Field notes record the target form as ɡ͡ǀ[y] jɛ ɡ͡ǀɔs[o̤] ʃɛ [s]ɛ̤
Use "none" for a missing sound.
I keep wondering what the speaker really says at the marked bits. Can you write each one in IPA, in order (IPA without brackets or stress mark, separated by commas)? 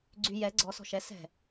y, ɔ̤, s